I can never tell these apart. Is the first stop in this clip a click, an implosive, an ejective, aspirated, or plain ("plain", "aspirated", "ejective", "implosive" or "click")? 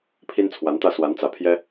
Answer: aspirated